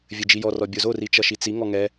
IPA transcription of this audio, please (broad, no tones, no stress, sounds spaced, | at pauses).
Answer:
vʲ ɘ d͡ʒ i j ɔ r ɔ bʲ o z o r i t͡ʃ ʌ ʃ i t͡s i ŋ ɔ ŋ ɛ